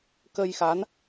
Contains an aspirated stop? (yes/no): no